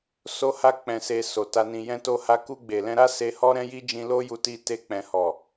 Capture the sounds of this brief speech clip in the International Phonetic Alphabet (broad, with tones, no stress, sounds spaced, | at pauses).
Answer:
s o˦ h a˦ k͡p ɛ̃˧ s e˧ s o˨ t a˧ n ĩ˨ j ɛ̃˧ t o˧ h a˧ k u˧ ɡ͡b e˨ l ɛ̃˧ ɾ a˦ s e˧ h ɔ˦ ɾ ɛ̃˦ j i˦ d͡ʒ ĩ˧ l o˦ j u˧ t i˧ t e˧ k͡p ɛ̃˨ h ɔ˨